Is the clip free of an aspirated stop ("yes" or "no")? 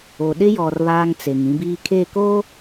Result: no